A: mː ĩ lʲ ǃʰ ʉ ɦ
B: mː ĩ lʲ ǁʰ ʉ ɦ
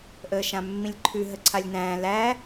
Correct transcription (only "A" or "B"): A